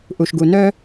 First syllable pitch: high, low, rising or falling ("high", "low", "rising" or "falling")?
low